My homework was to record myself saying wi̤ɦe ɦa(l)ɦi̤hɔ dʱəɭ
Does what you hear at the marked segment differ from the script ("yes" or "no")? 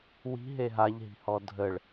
yes